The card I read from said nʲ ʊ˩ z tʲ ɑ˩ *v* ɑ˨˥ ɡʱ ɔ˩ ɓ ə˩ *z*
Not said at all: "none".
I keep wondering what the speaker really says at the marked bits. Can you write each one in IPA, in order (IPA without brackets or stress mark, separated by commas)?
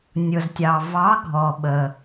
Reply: v, none